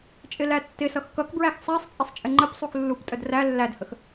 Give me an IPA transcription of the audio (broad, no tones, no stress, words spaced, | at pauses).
t͡ʃʼɪlætːɪsʌx kʌkbɹæx sˤæsˤt͡sʼɪsˤ t͡ʃʼɪŋ͡ǃəpsˤux lːuptʼəd ræ lːædhəx